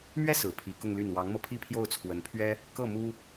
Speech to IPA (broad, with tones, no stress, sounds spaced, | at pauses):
m ɥ ɛ˥ s ɹ̩˨˩ pʰ i˧˥ k ʊ˥˧ ŋ l y˥˩ n w ɑ˧˥ ŋ m ɤ˧ pʰ i˥˧ pʰ j o˥˩ ʊ̯ t͡sʰ w ə˧˥ n pʰ ɥ ɛ˥ | k ɤ˥˩ m u˥